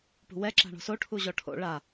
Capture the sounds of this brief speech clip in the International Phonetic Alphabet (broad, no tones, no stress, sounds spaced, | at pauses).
p ṳ w ɛ ǁ a̤ ɳ o̤ s o ʈʰ u ʑ ɔ ʈʰ o̰ ɭ a